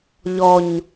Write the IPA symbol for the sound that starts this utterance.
ʎ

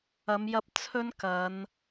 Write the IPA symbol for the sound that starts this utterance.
ɐ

